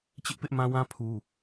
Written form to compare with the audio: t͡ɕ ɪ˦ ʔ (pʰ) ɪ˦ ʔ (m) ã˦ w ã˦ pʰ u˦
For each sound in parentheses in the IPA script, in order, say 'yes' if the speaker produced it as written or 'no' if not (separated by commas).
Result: no, yes